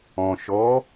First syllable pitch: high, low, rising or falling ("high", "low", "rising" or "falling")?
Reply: low